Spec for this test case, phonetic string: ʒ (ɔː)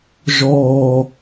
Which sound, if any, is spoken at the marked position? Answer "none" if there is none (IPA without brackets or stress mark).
ɔː